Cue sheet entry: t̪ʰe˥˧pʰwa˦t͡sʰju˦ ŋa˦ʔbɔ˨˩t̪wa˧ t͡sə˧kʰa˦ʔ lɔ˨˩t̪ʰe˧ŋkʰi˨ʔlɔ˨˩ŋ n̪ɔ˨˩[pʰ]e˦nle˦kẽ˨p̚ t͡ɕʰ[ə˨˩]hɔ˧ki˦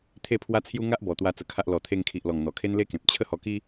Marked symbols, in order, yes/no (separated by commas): no, no